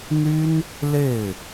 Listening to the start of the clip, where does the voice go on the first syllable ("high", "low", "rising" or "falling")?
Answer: high